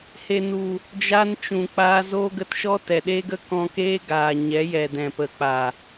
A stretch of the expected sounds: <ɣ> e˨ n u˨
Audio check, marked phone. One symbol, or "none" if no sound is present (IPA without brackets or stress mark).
h